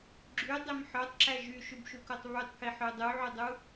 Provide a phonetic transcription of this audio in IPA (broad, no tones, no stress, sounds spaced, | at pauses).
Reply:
ɡ͡ǁ y dˤ e m ħ œ tˤ ǁ æ ʒ y ʃ y b ʃ u k o tˤ β y tˤ k i ħ ø dˤ u ʕ y dˤ u